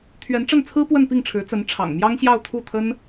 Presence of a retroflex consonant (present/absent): present